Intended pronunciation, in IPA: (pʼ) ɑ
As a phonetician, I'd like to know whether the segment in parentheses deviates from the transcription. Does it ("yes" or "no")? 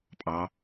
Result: no